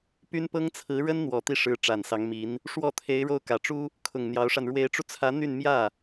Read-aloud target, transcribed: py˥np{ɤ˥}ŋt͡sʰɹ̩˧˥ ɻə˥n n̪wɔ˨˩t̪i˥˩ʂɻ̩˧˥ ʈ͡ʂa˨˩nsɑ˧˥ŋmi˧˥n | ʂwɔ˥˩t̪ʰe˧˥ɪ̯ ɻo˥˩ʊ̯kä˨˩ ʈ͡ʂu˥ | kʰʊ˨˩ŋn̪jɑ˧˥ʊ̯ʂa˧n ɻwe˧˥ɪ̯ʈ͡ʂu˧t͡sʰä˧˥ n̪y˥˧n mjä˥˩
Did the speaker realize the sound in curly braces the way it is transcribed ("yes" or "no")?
yes